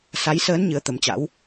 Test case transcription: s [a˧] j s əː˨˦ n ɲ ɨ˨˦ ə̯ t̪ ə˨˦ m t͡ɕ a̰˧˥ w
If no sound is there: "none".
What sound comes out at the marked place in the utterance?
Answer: a˨˦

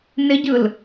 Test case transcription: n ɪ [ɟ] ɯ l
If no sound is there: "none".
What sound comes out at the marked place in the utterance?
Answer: ɟ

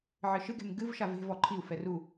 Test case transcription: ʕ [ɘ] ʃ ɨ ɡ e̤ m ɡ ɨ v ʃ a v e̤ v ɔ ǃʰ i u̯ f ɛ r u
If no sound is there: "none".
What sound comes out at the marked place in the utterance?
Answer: ɘ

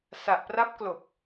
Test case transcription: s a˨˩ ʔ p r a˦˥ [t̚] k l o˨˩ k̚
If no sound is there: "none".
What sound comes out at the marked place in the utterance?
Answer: p̚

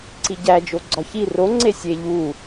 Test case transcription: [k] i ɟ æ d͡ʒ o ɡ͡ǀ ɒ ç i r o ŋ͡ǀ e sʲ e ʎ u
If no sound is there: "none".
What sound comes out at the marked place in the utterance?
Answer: ǀ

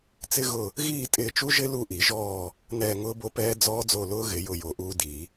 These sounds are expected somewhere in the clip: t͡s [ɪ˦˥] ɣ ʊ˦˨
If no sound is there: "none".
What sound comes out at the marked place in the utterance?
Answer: ɪ˦˥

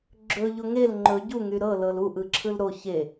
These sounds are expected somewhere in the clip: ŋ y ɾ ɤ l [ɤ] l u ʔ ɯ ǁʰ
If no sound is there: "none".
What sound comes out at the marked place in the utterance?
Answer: ɤ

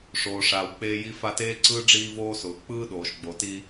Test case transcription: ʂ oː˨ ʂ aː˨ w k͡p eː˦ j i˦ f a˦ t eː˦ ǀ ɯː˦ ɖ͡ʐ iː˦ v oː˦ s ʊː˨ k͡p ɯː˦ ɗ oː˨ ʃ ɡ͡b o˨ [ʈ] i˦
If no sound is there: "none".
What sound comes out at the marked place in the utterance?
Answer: t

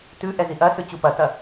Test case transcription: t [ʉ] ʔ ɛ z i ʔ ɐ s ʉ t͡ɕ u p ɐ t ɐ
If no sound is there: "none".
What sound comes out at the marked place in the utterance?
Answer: ʉ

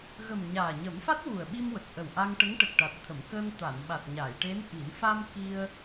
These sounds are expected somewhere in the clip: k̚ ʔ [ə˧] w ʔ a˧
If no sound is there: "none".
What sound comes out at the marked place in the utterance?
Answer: ə˨˩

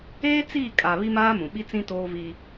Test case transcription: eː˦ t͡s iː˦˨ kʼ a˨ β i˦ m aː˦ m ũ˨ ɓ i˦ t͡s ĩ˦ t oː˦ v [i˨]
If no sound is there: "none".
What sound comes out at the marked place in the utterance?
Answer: i˦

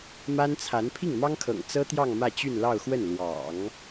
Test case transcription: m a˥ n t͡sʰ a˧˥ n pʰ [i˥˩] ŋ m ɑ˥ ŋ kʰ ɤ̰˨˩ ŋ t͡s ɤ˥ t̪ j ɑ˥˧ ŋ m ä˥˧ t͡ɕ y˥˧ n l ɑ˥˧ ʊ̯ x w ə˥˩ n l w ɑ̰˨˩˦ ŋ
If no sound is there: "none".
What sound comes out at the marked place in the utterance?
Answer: i˥˩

